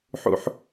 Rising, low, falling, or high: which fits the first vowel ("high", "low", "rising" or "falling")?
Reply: high